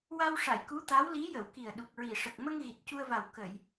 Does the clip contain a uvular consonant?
no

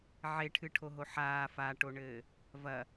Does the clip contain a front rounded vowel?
no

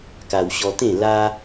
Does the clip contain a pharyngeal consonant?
no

